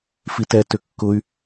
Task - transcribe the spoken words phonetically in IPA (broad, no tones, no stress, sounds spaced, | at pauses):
f i t ɛ t ʏ kː ʊ y̯